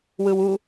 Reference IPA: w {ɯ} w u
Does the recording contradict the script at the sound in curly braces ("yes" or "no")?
no